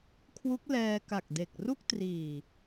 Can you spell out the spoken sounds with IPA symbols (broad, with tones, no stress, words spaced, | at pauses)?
kʰwu˦˥k̚lɛː˧ka˨˩k̚de˨˩k̚ ru˥˩k̚triː˨˩